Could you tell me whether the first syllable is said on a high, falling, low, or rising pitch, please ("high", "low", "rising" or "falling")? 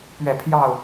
falling